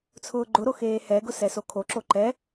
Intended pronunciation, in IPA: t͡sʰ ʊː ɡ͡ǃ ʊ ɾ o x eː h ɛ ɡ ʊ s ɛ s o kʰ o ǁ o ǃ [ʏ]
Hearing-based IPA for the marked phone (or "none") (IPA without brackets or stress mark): ɛ